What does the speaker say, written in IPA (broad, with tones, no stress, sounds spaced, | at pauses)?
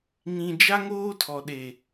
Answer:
ŋ ĩ˨ d͡ʒ a˦ ŋ oː˦ tʰ ɔ˨ ɗ e˨